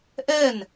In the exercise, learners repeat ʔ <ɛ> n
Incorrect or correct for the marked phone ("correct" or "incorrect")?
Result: correct